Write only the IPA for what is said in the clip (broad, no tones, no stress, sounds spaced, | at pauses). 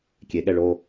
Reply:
kʲ e ɠ ɛ ɭ o